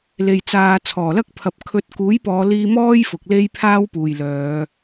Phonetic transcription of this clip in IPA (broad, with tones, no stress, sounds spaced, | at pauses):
l e˨ j t͡s aː˨˧ t͡sʰ ɔː˨˩ l ɐ˥ k̚ pʰ ɐ˨˥ p̚ kʰ ɵ˨˥ t̚ k uː˨˥ j p ɔː˨˧ l iː˧ m ɔː˥ j f ʊ˨ k̚ l e˥ j pʰ aː˥ w p uː˨ j l œː˨˧